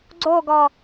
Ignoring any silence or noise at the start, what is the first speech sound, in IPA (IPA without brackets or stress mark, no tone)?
ɡ͡ǀ